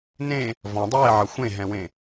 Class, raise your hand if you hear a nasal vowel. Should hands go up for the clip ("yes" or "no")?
yes